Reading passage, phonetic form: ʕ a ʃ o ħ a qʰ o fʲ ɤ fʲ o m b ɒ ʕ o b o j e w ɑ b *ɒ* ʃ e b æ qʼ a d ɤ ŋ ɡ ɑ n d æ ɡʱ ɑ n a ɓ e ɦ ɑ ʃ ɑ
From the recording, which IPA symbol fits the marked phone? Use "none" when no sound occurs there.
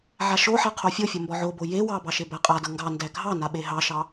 ɑ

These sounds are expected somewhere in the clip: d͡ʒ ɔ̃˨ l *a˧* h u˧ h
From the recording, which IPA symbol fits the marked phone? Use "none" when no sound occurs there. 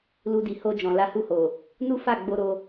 a˧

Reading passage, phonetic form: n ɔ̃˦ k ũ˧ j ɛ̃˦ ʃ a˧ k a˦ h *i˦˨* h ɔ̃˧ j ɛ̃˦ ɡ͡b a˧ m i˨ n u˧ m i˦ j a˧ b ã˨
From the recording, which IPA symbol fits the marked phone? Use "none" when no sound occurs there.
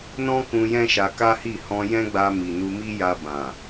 i˦˨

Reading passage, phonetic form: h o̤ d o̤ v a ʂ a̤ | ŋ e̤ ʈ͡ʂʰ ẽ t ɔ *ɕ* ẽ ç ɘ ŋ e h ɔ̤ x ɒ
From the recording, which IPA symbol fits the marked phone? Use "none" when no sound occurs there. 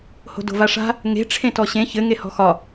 ɕ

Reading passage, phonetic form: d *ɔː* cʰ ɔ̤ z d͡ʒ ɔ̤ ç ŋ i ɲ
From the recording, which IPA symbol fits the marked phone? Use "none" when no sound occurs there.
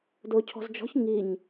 ʊː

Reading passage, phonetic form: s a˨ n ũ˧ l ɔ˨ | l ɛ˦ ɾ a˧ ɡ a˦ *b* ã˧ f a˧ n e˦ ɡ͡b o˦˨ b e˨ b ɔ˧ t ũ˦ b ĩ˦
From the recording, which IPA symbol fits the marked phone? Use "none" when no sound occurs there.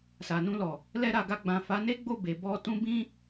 ɡ͡b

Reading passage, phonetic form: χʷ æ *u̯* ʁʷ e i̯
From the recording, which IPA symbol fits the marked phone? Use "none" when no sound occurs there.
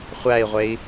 i̯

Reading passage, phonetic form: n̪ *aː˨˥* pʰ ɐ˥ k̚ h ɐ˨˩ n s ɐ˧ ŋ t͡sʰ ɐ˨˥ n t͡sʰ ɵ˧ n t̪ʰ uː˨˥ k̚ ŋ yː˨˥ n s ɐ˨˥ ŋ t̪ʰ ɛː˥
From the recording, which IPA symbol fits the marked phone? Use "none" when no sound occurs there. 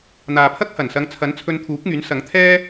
aː˨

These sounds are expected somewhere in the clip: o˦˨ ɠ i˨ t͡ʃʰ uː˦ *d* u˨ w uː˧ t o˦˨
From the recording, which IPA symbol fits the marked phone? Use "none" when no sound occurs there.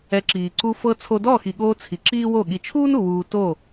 n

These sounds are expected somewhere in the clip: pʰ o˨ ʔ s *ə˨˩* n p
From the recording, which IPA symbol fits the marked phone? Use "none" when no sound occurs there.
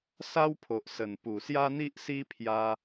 ə˨˩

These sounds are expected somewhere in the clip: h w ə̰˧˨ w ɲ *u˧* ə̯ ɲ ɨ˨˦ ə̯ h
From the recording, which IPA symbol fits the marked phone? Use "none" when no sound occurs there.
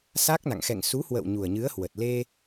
u˨˩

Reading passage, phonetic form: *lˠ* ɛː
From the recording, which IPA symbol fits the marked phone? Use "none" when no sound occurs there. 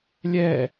lʲ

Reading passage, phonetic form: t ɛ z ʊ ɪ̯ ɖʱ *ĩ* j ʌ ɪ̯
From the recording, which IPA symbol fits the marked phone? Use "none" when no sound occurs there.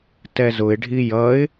i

